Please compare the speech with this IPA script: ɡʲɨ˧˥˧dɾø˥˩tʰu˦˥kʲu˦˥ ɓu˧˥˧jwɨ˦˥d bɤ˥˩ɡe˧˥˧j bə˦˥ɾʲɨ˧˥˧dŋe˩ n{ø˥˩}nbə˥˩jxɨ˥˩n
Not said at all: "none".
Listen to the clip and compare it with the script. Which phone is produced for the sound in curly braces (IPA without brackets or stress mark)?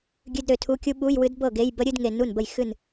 u˥˩